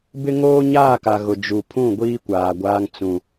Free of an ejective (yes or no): yes